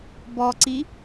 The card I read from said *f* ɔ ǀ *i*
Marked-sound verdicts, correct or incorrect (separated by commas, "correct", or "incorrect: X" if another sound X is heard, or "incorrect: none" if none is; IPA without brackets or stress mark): incorrect: b, correct